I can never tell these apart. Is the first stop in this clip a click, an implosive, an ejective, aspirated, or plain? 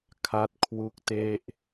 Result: aspirated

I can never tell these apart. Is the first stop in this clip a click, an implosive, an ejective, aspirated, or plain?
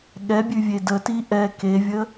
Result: implosive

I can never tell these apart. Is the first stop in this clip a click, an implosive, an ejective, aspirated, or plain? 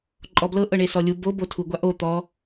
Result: click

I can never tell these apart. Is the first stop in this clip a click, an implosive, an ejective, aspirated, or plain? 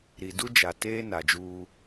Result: plain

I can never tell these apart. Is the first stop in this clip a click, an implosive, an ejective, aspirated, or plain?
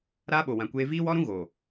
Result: implosive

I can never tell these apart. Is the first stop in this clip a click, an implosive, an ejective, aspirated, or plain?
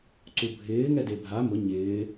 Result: click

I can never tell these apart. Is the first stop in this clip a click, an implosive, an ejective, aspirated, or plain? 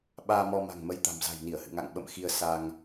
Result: implosive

